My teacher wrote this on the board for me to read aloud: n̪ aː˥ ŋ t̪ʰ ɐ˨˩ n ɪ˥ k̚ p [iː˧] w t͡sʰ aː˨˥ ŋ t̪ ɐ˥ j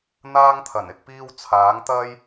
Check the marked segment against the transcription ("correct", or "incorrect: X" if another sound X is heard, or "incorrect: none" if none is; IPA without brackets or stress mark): incorrect: iː˥